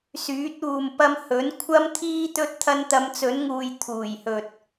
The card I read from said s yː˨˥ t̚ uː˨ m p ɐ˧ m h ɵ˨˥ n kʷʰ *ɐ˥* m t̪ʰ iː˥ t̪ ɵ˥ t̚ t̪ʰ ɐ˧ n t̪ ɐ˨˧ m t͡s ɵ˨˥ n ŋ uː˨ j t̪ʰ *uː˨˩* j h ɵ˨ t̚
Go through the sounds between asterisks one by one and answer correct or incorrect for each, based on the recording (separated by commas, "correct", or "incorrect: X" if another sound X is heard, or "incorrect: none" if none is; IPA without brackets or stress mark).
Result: correct, correct